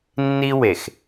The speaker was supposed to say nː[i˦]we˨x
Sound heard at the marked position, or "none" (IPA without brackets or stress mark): i˦